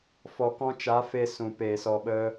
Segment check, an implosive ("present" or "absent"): present